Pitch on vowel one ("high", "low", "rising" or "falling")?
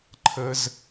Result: high